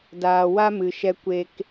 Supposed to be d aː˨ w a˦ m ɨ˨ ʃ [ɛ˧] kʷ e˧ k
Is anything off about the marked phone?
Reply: no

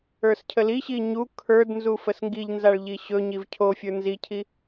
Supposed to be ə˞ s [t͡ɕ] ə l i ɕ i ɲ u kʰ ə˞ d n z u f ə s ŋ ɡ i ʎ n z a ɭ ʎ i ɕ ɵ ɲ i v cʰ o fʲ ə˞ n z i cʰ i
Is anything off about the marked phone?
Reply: yes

